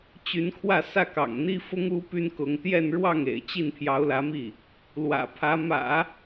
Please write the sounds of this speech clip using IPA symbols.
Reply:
t͡ɕ y˧˥ n kʰ w ä˥˧ s ä˥˩ k ɑ̰˨˩ ŋ n̪ i˥ f ʊ˥ ŋ u˥ p y˥ n k ʊ˧˥ ŋ t̪ j ɛ˥˧ n ɻ w ɑ˥˩ ŋ ḛ˨˩ ɪ̯ t͡ɕ i˥˩ n pʰ j ɑ˧˥ ʊ̯ l ä˧˥ m i˥˩ | l w ä̰˨˩ pʰ ä˧˥ m ä̰˨˩˦

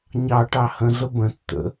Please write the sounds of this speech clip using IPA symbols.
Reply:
ɲ ɑ ʈ ɑ h ə̃ ɮ ə b ə̃ tː ə̰

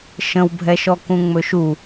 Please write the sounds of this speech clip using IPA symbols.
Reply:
ʃ ə̃ w bʱ ɛ ʃ ɔ k ũ ŋ͡m ɵ ʃ u

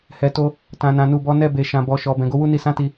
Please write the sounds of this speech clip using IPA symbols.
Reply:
h ɛ˨ t o˧ | t ã˨ n ã˨ n u˨ b ɔ˨˦ n ɛ˧ b e˨ ʃ ã˨ b ɔ˨ ʃ ɔ˨ b ɛ̃˨ ɡ o˧ w u˦ n i˧ s ã˦ t i˧

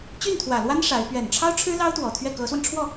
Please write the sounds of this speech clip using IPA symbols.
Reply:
t͡ɕ y˥˩ n t̪ʰ w ä˨˩ l w a˥ n ʂ a˧˥ ɪ̯ p ɥ ɛ˨˩ n ʈ͡ʂʰ ɑ˥ ʊ̯ ʈ͡ʂʰ ɻ̩˥ l ɑ˥ ʊ̯ t̪ w ɔ˨˩ t̪ʰ ɥ ɛ˥˩ k ɤ˧˥ s w ə˧ n ʈ͡ʂʰ w ɔ˥˩

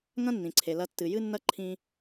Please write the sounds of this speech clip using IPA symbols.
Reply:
ŋ ɐ̃˥ nː ĩ˩ ǀʰ e˩ l ɐ˧ tː ɨ˩ j ɨ˥ nː ɐ˥ ǃʰ ĩ˧

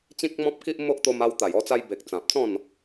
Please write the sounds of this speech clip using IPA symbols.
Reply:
t͡ɕ ĩ˦ k̚ m ɔ̃˦ p̚ k i˦ ʔ m o˦ ʔ t̪ o˧ m a˧ w t̪ a˨˩ j ɔ˧ t͡s a˧ j b e˨ k̚ t͡s ã˨ p̚ t͡s ɔ̃˥˧ n

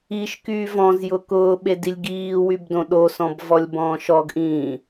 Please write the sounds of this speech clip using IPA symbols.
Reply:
i ʃ k yː v ɔ̃ z j ʊ k ʊː ɓ e d i lʲ ɡ iː w y b d õ ɗ o s ɔ̃ b v ɔ lʲ b ɔ̃ː ʃ ɔ ɡ ʔ ĩː

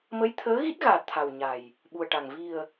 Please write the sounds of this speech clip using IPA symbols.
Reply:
m ə˧˥ j t̪ʰ əː˧˥ ɣ i˦˥ t̚ ɣ aː˨˩ t̪ʰ a˨˩ w ɲ a˨˩ j | ɓ u˨˩ ə̯ ʈ a˨˩ ŋ v i˨˩ ə̯

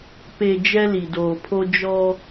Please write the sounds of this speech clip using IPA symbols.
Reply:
p e˨ d͡ʒ ɛ˦ l i˨ d oː˨ pʰ o˦ d͡ʒ ɔ˦

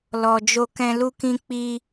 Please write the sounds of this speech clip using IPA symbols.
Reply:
l ɔ˨ d͡ʒ o˧ k ɛ̃˧ l u˦ k ĩ˧ k͡p i˧

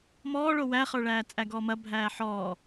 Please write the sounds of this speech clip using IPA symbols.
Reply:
m ɔː ɭ o w æ χ ə˞ ɭ æː t͡sʼ æ ɡ ɔː m ɐ bʱ æː ħ ɔː

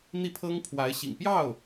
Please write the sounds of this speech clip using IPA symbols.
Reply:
n̪ i˥˩ pʰ ɤ˥ ŋ pʰ w a˧˥ ɪ̯ ɕ ḭ˨˩ ŋ p j ɑ˥˩ ʊ̯

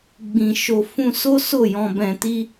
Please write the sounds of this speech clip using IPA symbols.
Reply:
ɡ͡b ĩ˨ ʃ o˧ f ũ˧ s o˦ s o˦˨ j ɔ̃˧ b ɛ̃˧ t i˦

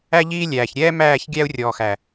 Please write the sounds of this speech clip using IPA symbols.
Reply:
æ˧ ʎ iː˧ lʲ æː˨ ç ɾʲ ɛː˦ m æː˦˨ ç ɡʲ æ˧ u̯ rʲ ɔː˨ x æ˨

